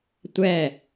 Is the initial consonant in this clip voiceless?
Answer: yes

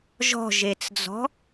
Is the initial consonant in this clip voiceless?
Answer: no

